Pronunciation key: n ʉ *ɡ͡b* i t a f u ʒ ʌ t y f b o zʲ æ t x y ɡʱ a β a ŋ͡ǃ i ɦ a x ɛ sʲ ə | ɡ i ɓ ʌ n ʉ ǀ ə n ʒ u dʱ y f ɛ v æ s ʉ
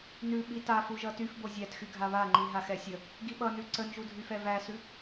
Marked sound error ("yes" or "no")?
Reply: yes